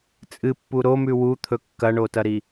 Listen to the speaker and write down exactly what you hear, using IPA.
t͡sʼ ɨ pː u ɾ o m ʉ w u t̪ʰ ɵ kː ɐ ɳ o t ɐ ɾ i

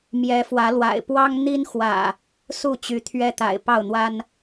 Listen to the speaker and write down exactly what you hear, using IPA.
m j ɛ˨˦ f w ä˨˦ l w a̰˨˩ ɪ̯ p w ɑ˦ ŋ n̪ i˦ n x w ä̰˨˩ | s u˥˨ t͡ɕ y˨˦ t̪ʰ ɥ ɛ˦ t̪ a̰˨˩ ɪ̯ p ɑ˥˨ ʊ̯ n̪ w a˦ n

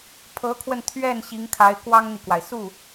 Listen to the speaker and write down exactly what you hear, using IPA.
pʰ ɤ˧˥ kʰ w ə˧ n t̪ʰ ɥ ɛ˥˩ n ɕ i˧˥ ŋ kʰ a˧˥ ɪ̯ k w ɑ˥ ŋ n̪ i˨ k w a˩ ɪ̯ s u˥˩

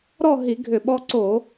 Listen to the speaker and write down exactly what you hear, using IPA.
ɾ ɔ˥˧ ɦ i˧˩˧ ɡʱ ʏ˧˩˧ ɓ ɔ˧ ǀ o˧˩˧

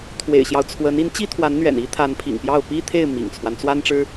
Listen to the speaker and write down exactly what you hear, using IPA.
t̪ʰ w ḛ˨˩ ɪ̯ ɕ j ɑ˦ ʊ̯ t͡sʰ w ə˧˥ n i˧˥ n t͡ɕ i˥ t̪ʰ w a˧˥ n n̪ ɥ ɛ̰˨˩ n i˥ t̪ʰ a˧˥ n pʰ ḭ˨˩ ŋ p j ɑ˥˩ ʊ̯ p i˥ t̪ʰ e˥˩ ɪ̯ m ḭ˨˩ ŋ t͡sʰ w a˦ n t͡s w a˥ n ʈ͡ʂ ɻ̩˥

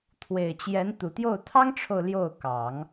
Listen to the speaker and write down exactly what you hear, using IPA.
t̪ʰ w e˨˩ ɪ̯ t͡ɕ j ɛ˧˥ n t̪ u˨˩ t̪ j o˥˩ ʊ̯ t̪ʰ ɑ˥ ŋ ʈ͡ʂʰ o˨ ʊ̯ l j o˥˩ ʊ̯ k ɑ˨˩˦ ŋ

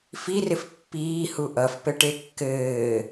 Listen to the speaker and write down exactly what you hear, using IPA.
f i r ɪ f pː iː h u ʔ ʌ f p ɘ ʈ e kː ɘː

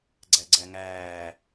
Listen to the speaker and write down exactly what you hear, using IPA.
ɡ͡ǀ æ ɡ͡ǀ æ ŋ æː

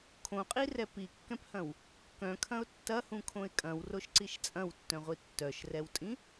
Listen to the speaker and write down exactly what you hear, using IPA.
kʰ õ qʼ i r ɛ p i kː ɛ̃ p h ɐ̃ w | k œ̃ kʰ ɐ̃ ʊ̯ tː ɐ h ũ kʰ õ ɪ̯ kʼ ɐ̃ w r o ʃ ǀ i ʃ t͡sʼ ɐ̃ w tː œ̃ ʁʷ i tː œ ʃ r ɛ w tʼ ĩ

